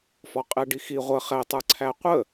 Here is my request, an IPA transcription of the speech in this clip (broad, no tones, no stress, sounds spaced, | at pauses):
f ɔ qʼ ɛ ɖ i x i ʁʷ ə χ ɛ tˤ ə˞ ǀʰ æ qʷ ə